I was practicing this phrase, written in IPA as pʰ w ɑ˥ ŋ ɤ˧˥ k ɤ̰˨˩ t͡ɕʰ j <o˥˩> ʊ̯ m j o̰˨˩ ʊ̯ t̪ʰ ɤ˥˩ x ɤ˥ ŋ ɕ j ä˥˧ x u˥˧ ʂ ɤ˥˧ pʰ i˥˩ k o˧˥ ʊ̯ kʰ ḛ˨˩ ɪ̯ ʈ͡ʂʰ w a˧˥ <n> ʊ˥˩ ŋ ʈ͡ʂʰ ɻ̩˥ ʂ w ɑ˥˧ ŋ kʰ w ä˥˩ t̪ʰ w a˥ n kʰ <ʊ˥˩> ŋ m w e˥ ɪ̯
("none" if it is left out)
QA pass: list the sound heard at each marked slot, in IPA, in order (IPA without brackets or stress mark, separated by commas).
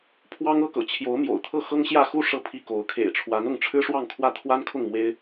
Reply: o˧˥, n, ʊ˥˩